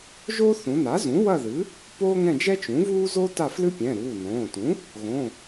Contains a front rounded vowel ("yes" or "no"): no